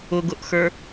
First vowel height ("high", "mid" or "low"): high